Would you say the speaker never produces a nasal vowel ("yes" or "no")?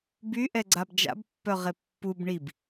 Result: yes